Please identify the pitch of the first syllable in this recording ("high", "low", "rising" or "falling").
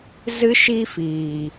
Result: high